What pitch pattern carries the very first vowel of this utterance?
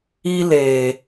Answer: high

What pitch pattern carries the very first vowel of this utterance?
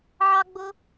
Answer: high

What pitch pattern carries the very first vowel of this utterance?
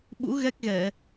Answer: rising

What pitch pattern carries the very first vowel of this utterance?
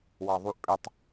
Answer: low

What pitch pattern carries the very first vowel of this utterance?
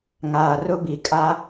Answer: low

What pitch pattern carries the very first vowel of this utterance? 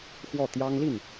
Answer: falling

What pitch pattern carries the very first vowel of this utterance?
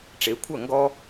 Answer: rising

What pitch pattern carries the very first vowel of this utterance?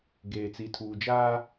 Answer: low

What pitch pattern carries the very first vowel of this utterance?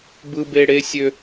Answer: high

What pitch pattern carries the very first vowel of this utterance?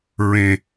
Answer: low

